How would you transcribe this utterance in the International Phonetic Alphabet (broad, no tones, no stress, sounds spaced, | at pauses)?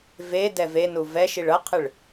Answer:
v e d ɛ v e n u v ɛ ʃ i ɭ ʌ qʰ ɯ ɭ